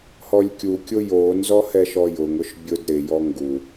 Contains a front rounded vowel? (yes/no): no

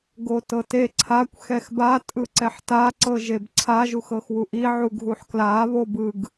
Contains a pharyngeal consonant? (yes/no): yes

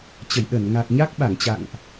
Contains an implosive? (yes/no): yes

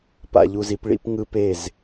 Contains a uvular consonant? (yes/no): no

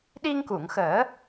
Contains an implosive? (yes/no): yes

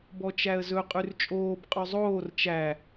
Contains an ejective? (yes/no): yes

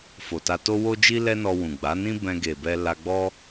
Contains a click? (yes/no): no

